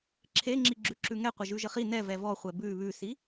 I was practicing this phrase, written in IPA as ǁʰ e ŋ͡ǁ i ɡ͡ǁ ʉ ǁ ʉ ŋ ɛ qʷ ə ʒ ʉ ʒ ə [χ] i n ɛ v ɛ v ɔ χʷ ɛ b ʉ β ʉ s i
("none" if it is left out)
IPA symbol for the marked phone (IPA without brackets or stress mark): χ